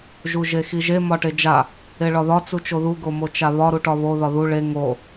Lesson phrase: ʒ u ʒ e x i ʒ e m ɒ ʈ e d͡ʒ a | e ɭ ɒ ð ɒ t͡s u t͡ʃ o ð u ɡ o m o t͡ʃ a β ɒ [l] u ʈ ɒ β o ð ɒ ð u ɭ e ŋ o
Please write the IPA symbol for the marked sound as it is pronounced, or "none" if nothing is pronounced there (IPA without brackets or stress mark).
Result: ɾ